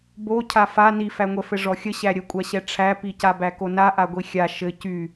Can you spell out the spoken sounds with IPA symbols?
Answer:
b o cʰ a f a n i f æ ŋʷ ɛ f ɘ ʐ ɔ xʲ ə ɕ æ ɾʲ ə kʷʼ a ɕ ɛ ʈ͡ʂʰ æ p i c a b æ k o n a ʔ a ɡʷ i xʲ a ʃ ɘ c y

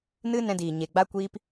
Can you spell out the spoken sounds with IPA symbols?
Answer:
n ɨ˦ n ɛ̃˧ d iː˨ ɲ e˨ ɡ͡b a˦ kʷ iː˦ p

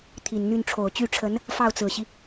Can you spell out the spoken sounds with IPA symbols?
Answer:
t̪ʰ i˨˩ n n̪ y˥˩ n ʈ͡ʂʰ o˨˩ ʊ̯ t͡ɕ y˥˩ ʈ͡ʂʰ ə˧˥ n | f ɑ˥˩ ʊ̯ t͡s ɹ̩˨˩ ɕ i˦

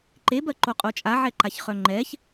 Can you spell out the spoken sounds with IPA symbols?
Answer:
ǃ e b ɜ ǃ o qʼ o t͡ʃʼ a ʕ ɛ ǃ a ç χ œ ŋ͡ǃ ɛ ç

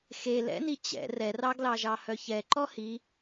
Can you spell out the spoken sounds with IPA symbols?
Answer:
x e l ɛ̰ n i t͡ɕ ɛ̰ r ɛ r ɑ ɡ l ɑ ʒ ɑ h œ ç ɛ ǃ ɔ h i

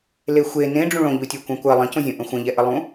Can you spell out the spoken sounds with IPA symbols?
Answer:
l e xʷ e n ẽ ɖ͡ʐ ũ ɭ õ ʎ u tʲ o kʷ ɛ̃ kʷ ɜ lˠ ə̃ c õ zʲ õ ʔ ə̃ xʷ ə̃ ʎ ɛ ʔ ə lˠ ũ

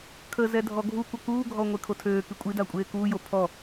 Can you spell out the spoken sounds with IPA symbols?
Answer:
kʰ ə z ɛ dʱ ɔ ɡʱ u kʷ ə k uː ɡʱ ɔ ŋʷ e kʰ o tʰ øː k i kʷʼ i d a kʷʼ eː k uː j o pʰ ɔ

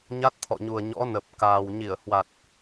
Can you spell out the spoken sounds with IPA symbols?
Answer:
ɲ a˦˥ t̚ t̪ʰ ɔ̰˧˨ ɲ u˨˩ ə̯ ɲ ɔ̰˧˥ n ə˨˩ p̚ k aː˨˩ w ɲ i˧˩ ə̯ h w a˨˩ t̚

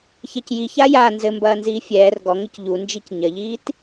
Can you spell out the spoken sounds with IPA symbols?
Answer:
ç ɛ c j i ç a j a n z ɘ m b ɐː n z iː fʲ ɛː r ɡ ɔ ŋ ɘ c ʎ u n d͡ʒ i c ɲ ɐ ʎ iː t

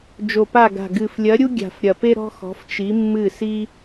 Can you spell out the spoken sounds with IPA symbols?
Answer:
d͡ʒ o˨˩ p a˦˨ ɡ a̤˨˩ ɡ ɨ˨˩ f lʲ ɐ˧˥ ɾʲ u˥ ɡʲ a̤˨˩ f ɾʲ ɐ˨˩ p e˥ ɾ ɔ̤˥ x ɔ̤˧˥ f t͡ʃ i˧˥ mː ɨ˦˨ s i˥

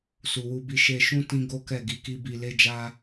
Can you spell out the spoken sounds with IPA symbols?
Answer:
s u˨ w u˧ b i˧ ʃ e˧ ʃ ũ˦ t ĩ˦ ɡ o˦ k ɛ˦˨ ɡ i˧ k i˦ b i˧ l e˦ d͡ʒ a˦

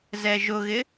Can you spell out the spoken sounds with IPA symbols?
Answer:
z ɛ ʒ ʊ ɣ ɪ

